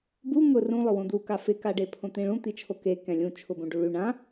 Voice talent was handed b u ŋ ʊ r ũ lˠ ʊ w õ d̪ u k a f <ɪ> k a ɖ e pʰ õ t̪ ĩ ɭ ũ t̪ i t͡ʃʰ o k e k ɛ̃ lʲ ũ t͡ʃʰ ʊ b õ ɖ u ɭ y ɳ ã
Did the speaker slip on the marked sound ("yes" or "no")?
no